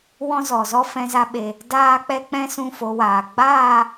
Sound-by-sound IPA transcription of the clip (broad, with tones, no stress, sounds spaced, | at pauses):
w ɔ̃˦ z ɔ˨ z ɔ˦ f ɛ̃˧ z a˧ ɓ e˨ | d aː˦ k͡p ɛ˦ k͡p ɛ̃˦ s ũ˦˨ f o˧ w aː˨ ɡ͡b aː˦˨